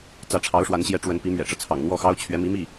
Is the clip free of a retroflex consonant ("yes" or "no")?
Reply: no